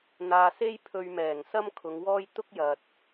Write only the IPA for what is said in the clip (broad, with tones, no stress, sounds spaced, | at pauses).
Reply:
n̪ aː˨ s e˥ j pʰ ɵ˧ ɥ m ɛː˨˩ ŋ s ɐ˥ m kʰ ʊ˨˧ ŋ w ɔː˥ j t̪ ʊ˥ k̚ j ɐ˨ t̚